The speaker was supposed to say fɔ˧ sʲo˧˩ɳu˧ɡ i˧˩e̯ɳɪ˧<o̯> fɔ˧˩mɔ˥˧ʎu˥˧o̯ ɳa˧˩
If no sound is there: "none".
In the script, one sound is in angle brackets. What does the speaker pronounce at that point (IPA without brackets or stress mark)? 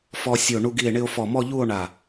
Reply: o̯